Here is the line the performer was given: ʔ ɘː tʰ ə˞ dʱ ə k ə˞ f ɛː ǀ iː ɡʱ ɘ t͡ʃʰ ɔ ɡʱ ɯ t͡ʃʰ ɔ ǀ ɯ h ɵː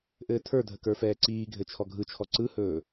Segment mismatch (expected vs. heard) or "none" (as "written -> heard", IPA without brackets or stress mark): none